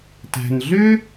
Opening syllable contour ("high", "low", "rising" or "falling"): low